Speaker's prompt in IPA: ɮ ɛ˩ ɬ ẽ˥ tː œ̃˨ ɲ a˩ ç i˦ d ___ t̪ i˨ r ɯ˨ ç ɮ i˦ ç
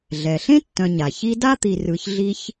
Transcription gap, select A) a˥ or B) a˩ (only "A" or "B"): A